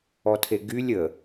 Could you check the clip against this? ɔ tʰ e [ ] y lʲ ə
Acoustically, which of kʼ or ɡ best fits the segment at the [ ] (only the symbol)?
ɡ